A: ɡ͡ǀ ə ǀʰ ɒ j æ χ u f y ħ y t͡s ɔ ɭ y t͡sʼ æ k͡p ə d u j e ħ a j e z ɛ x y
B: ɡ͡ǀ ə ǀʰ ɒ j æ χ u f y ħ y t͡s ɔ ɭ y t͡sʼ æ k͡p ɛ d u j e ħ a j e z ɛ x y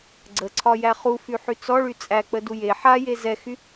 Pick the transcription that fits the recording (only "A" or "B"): A